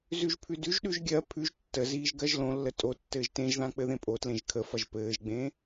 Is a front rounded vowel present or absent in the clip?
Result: absent